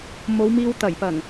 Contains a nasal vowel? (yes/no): no